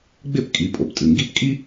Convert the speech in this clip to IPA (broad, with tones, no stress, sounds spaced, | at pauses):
ɡ͡b ɪ˥˩ p kʼ i˩˧ pʼ o˩˧˩ p tʼ ɨ˩˧˩ ŋ ɡ i˥ p kʼ i˥